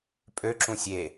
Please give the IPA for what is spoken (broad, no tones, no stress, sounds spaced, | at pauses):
pʼ ø ǁ ũ sʲ e